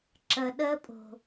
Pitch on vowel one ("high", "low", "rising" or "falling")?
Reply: low